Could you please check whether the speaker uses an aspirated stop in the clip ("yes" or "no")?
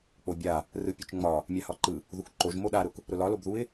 no